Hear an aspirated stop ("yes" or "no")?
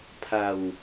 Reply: yes